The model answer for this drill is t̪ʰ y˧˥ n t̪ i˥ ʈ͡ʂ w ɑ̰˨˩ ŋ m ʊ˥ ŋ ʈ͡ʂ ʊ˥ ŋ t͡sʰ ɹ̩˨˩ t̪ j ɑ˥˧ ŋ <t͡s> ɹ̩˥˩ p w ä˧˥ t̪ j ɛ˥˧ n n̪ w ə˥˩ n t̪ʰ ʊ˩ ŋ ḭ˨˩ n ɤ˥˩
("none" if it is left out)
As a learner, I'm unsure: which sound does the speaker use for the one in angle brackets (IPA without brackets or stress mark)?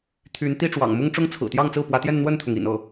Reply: t͡s